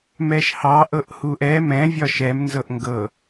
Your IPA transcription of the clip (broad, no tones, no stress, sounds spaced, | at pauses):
m ɛ ʃ h ɑ ʔ ɤ ʔ h u ʔ ɛ m ɛ̃ vʲ ɒ ʃ ɛ m n z ɤ ʔ ŋ ɡ ɤ